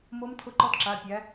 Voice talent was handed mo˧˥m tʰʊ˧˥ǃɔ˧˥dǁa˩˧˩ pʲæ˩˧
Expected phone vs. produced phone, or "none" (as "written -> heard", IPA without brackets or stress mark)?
none